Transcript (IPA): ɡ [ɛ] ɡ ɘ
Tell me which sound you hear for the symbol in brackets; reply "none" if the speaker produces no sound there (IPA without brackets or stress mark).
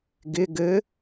ɪ